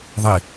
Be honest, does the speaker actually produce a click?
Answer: no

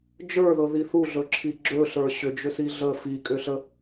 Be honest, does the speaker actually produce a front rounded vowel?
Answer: yes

